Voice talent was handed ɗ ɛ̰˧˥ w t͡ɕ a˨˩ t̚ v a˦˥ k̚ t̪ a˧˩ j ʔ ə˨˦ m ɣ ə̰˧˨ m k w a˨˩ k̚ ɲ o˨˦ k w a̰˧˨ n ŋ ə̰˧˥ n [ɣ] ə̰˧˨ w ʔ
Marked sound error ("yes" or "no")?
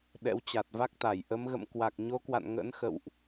yes